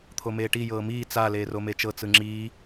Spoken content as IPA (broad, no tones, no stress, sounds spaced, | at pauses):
t̪ʰ o m eː ʈ i j ɤː m iː t͡s a l eː r o m e t͡ʃ ɤ t͡s ɯ ŋ͡ǁ iː